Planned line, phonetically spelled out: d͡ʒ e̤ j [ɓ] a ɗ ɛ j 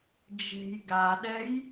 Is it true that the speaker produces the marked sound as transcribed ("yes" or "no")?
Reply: no